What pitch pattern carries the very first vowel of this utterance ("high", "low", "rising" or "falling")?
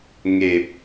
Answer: low